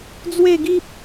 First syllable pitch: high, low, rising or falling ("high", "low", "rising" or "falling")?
falling